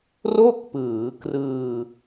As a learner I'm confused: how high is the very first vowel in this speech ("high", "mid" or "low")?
mid